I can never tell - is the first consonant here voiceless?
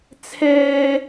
yes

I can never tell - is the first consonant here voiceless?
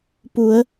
yes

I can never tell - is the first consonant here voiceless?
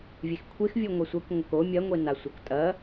no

